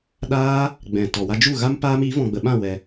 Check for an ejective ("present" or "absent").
absent